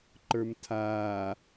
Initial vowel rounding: unrounded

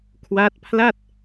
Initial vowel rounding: unrounded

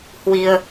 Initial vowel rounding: unrounded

